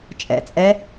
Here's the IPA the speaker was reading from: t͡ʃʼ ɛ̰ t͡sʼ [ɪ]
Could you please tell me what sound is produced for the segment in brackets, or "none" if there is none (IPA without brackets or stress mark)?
ɛ